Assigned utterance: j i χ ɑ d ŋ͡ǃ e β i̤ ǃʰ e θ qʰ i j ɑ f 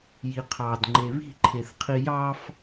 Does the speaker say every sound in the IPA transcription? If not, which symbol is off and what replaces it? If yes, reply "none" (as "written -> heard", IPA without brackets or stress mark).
χ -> qʰ